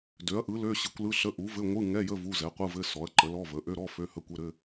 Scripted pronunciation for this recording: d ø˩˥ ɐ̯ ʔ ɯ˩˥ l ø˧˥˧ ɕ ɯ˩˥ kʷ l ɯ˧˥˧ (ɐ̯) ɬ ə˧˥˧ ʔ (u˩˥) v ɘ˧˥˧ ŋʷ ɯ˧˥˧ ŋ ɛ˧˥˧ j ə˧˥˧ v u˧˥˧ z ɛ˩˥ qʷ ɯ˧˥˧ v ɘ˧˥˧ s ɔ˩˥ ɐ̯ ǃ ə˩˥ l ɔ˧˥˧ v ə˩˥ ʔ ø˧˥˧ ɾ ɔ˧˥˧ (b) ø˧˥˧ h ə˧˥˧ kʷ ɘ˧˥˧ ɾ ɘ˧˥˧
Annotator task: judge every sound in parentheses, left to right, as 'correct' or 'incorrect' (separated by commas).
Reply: incorrect, correct, incorrect